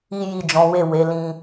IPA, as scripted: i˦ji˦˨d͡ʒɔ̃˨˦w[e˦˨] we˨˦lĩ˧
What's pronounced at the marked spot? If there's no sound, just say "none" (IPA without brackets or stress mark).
e˦˨